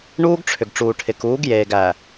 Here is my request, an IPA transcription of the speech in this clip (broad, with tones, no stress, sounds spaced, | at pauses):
ɳ uː˦ ɡ ʈ͡ʂʰ ʏ˨ ɡ ʈ͡ʂ uː˨ ʈʰ ɪ˨ k uː˨˦ ɡ j eː˨ ɡ æ˨